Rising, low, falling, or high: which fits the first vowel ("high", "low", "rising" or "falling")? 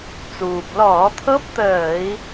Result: low